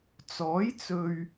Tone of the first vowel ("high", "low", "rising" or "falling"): rising